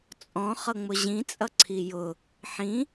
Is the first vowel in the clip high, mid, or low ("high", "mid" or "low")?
mid